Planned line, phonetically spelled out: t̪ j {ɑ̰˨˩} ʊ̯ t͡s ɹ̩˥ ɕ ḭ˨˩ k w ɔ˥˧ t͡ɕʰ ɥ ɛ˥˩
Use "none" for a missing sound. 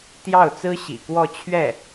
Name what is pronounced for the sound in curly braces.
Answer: ɑ˥˩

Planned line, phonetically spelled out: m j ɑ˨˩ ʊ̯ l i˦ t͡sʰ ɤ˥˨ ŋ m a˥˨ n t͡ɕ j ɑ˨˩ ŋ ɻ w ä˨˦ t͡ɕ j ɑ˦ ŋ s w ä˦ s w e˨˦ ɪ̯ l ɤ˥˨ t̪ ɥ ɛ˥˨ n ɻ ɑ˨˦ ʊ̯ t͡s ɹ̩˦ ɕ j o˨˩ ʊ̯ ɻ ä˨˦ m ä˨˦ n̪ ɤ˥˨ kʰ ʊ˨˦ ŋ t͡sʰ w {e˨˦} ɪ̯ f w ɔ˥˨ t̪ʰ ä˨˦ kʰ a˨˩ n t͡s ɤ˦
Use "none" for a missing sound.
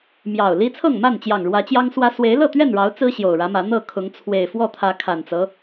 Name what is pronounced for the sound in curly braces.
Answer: e˨˩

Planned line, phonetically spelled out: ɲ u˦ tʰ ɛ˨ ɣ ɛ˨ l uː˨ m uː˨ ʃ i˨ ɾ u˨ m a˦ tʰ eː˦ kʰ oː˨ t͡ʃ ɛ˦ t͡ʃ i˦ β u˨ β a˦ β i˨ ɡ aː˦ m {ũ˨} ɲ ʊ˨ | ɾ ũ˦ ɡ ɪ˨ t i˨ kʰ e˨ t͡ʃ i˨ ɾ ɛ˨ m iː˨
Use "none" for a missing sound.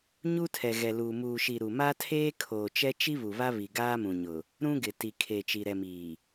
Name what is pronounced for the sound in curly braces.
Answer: ũ˨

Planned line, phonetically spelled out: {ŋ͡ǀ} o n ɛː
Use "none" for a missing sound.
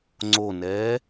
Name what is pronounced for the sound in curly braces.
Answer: ŋ͡ǀ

